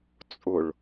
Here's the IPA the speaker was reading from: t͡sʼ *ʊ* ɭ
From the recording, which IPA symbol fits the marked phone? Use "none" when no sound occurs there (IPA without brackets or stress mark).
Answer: ʊ